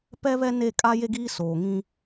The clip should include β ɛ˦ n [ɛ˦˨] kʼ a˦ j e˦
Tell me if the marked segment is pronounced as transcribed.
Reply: no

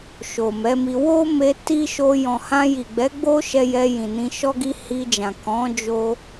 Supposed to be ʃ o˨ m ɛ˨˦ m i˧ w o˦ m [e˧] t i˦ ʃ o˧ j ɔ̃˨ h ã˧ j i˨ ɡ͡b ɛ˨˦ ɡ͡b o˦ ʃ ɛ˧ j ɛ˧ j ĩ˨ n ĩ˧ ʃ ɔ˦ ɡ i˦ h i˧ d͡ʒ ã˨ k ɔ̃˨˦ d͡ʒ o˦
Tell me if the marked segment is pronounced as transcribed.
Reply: yes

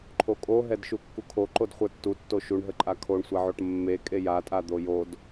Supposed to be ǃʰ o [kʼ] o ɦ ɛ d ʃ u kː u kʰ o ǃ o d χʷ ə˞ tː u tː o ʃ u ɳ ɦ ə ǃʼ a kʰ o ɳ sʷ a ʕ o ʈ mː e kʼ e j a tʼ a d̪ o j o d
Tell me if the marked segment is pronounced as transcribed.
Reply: yes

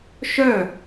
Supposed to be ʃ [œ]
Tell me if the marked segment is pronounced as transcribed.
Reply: yes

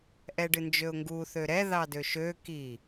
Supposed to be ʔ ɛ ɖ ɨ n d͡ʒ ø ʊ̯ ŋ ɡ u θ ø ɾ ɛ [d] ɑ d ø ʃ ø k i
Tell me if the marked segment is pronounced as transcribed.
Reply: no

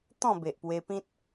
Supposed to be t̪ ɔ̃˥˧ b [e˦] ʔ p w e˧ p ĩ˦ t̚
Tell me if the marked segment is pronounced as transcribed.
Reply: no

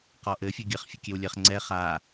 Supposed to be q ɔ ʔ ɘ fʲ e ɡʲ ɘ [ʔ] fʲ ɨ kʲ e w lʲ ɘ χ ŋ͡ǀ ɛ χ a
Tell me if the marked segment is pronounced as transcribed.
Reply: no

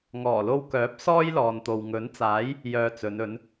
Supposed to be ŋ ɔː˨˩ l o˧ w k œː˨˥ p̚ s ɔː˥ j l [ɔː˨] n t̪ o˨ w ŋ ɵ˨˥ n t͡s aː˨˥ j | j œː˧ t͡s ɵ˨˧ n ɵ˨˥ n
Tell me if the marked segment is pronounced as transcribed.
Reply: yes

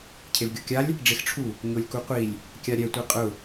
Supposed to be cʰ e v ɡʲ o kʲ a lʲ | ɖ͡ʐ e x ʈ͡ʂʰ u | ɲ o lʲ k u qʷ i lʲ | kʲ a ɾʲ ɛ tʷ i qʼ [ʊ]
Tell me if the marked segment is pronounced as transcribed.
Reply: yes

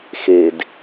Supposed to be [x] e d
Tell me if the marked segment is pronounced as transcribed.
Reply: yes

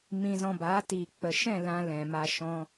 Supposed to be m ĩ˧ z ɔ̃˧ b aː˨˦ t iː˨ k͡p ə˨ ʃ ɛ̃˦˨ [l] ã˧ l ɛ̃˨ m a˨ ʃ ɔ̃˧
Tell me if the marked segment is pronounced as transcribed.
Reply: yes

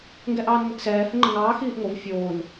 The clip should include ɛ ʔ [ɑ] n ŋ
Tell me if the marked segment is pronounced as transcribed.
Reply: no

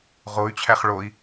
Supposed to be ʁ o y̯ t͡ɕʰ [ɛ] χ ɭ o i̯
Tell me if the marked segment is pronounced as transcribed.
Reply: no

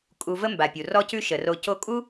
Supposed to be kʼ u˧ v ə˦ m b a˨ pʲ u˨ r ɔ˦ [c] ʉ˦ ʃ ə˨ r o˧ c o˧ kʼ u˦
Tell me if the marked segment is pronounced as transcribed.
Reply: yes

